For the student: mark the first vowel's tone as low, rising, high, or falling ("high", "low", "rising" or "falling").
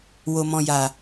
low